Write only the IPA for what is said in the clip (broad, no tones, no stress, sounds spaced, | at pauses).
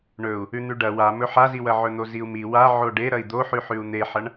ɳ ɵ u̯ | ʉ n̪ ʉ ɖ ɐ w a m ɵ ħ a z i w ɐ ʕ ɵ n̪ o z i u̯ m i w a ʕ o ɖ e ɾ ɐ i̯ d̪ o ħ ʉ ħ ʉ u̯ n̪ e ħ ɐ ɳ